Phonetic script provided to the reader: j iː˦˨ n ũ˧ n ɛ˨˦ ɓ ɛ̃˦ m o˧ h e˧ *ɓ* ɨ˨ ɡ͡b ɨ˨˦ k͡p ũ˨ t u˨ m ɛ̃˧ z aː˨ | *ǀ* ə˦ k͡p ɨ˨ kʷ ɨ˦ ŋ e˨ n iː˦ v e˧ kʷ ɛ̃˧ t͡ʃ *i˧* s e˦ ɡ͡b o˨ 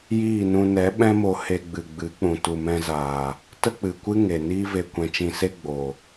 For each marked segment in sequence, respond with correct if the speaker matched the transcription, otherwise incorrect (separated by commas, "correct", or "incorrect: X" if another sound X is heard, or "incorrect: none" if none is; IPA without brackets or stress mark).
incorrect: ɡ͡b, incorrect: t, incorrect: ĩ˧